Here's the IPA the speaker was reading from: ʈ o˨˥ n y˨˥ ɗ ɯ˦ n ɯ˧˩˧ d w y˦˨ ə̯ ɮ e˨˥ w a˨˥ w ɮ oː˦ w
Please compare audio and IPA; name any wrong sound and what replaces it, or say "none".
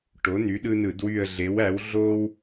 a˨˥ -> æ˨˥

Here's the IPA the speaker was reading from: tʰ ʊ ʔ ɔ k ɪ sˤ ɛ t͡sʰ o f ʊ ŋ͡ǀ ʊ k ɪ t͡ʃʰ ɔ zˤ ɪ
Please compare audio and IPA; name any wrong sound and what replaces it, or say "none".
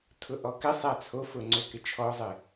none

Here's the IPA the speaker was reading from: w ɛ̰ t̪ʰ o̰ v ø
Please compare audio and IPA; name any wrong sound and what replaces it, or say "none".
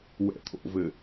ø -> ɘ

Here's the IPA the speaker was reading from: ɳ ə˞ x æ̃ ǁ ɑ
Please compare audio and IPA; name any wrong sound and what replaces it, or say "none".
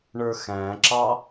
none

